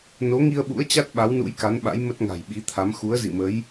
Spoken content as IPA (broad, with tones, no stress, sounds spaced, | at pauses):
n o˨˦ ŋ i˧ ə̯ ɓ ṵ˧˥ ə̯ t͡ɕ a˦˥ t̚ ɓ a˨˦ w n ṵ˧˥ j k a˨˦ n ɓ a̰˧˥ j m ə˦˥ t̚ ŋ a̤˨˩ j ɓ i˨˦ t̪ʰ a˨˦ m x u˨˦ ə̯ z ḭ˧˨ m ə˨˦ j